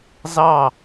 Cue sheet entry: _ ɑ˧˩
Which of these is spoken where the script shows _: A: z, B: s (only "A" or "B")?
A